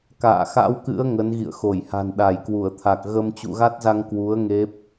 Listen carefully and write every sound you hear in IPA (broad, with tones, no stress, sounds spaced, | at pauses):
k a̰ː˧˨ x a̰˧˥ w k ɨ̰˧˥ ə̯ ŋ ə˨˦ n ɣ ḭ˧˨ ə̯ x o˧˩ j h a̤˨˩ n ɗ a˧˩ j k w u˧˩ ə̯ t̪ʰ a˨˩ k̚ ɣ ə˧ m t͡ɕ ṵ˧˨ ɣ a˦˥ t̚ z a˧ ŋ k w u˨˦ ə̯ ŋ e˦˥ p̚